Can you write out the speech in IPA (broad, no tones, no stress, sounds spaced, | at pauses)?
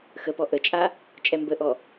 x ə p ɔ ʔ ə t͡ʃʼ a | t͡ʃʼ ɛ m b ə ʔ ɔ